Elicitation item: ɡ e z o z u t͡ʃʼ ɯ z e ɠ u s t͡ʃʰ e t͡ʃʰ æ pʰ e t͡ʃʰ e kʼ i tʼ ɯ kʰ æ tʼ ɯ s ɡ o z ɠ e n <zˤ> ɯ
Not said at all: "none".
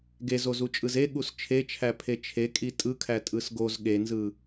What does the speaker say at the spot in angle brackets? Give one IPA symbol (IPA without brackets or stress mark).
z